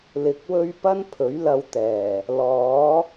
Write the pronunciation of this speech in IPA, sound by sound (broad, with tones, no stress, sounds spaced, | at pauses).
l ɪ˨ k̚ w ɵ˥ ɥ p ɐ˥ n pʰ ɵ˨˥ ɥ l ɐ˧ w t̪ ɛː˨˩ | l ɔː˨˥